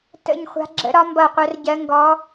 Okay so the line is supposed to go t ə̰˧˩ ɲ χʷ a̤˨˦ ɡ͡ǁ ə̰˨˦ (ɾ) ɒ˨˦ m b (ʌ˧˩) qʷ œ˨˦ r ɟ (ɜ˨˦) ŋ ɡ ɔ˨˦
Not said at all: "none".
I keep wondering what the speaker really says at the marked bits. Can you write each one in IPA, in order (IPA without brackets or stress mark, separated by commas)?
ɾ, ʌ˧˩, ɜ˨˦